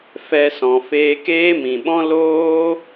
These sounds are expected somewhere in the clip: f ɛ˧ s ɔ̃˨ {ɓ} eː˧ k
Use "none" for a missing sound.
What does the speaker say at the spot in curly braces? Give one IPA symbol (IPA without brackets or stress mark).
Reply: f